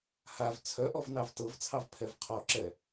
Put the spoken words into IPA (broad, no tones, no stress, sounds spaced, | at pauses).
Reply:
h a v t͡sʰ œ ʔ ɔ v n ɑ v t ɤ v t͡sʰ ɑ v pʰ ɛ v qʰ ɔ ǁ ɛ